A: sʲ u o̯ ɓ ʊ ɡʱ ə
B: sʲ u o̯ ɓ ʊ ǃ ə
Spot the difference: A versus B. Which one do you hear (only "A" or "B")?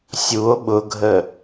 A